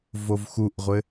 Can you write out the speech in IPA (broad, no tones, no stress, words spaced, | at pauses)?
vovxuʔʁʷɘ